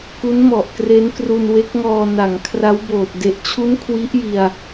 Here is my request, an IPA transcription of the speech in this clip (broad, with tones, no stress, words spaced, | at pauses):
ku˦˥nmɔ˨˩ʔkre˦˥nkru˧n we˦˥k̚ŋɔː˧ na˩˦ŋkʰra˦˥wboː˨˩t̚ de˨˩ʔt͡ɕʰu˦˥n kʰwi˦˥ʔji˧a̯